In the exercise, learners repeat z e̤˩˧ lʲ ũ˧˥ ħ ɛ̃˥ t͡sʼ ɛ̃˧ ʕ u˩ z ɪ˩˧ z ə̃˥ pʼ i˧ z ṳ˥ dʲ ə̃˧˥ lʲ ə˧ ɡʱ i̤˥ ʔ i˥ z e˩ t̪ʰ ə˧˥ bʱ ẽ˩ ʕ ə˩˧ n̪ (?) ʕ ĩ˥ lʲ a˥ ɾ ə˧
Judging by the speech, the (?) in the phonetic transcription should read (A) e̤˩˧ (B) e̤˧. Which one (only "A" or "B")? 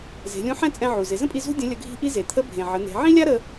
A